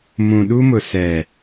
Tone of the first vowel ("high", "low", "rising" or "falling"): low